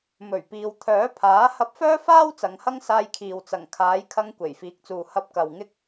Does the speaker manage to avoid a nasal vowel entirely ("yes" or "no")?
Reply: yes